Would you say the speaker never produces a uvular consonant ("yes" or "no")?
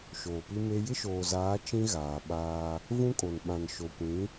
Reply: yes